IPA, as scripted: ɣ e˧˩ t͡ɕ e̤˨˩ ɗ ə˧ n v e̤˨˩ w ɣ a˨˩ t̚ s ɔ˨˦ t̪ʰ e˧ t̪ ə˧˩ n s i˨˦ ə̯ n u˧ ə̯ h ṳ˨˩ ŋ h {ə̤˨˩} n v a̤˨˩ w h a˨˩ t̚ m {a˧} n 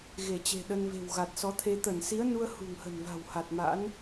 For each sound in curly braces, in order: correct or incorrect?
correct, incorrect: a̰˧˥

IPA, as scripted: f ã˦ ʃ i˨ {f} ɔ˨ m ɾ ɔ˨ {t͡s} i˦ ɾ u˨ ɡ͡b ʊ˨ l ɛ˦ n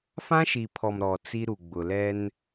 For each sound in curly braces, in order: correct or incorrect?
incorrect: pʰ, correct

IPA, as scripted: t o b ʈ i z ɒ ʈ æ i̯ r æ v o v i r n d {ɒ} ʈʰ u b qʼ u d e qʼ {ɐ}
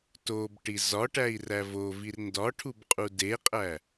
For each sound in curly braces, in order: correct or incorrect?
correct, incorrect: æ

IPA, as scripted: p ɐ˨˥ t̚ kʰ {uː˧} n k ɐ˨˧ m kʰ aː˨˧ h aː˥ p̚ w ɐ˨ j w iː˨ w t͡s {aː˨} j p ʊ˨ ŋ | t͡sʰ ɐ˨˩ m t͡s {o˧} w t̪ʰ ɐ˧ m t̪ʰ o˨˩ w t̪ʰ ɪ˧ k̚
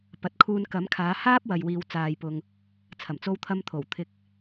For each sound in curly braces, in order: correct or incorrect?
correct, correct, correct

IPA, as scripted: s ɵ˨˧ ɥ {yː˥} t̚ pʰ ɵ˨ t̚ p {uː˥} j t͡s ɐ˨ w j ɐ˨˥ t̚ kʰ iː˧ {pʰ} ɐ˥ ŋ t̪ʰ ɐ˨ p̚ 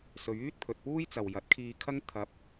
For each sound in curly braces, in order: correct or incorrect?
correct, correct, incorrect: kʰ

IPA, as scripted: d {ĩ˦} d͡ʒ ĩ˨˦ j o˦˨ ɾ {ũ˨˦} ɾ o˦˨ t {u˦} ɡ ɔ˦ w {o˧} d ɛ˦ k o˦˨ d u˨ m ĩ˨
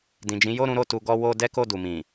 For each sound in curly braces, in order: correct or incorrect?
incorrect: ĩ˨, correct, incorrect: u˧, incorrect: o˦

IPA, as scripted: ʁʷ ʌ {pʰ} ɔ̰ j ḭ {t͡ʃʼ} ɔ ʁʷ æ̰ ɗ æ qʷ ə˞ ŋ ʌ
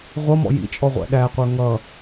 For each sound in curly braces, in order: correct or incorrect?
incorrect: m, correct

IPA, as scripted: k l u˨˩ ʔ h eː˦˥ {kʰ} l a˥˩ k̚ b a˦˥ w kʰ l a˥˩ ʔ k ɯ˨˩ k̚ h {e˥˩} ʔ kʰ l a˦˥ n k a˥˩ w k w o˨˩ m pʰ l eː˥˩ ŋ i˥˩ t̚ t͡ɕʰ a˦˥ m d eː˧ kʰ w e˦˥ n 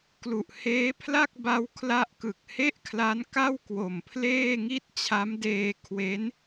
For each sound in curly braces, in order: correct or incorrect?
incorrect: pʰ, correct

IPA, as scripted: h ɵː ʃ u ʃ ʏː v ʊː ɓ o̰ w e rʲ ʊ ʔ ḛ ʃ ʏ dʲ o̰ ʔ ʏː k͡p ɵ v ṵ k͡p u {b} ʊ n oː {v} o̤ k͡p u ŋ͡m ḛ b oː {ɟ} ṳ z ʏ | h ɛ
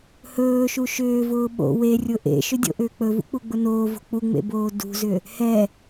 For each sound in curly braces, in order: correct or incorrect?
incorrect: ɡ͡b, correct, incorrect: d

